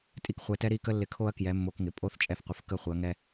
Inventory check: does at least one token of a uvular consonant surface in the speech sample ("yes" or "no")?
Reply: yes